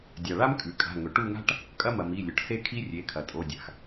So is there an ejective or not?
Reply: yes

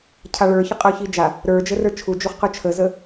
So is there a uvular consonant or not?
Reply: yes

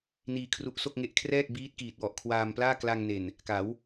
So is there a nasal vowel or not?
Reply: no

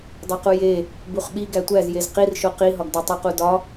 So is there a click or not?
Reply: no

